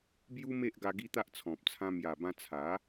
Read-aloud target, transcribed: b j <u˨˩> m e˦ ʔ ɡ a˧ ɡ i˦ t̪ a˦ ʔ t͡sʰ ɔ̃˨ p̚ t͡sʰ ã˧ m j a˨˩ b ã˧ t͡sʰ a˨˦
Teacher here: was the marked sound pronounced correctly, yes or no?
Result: no